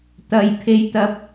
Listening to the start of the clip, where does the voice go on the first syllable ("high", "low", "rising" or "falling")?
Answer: high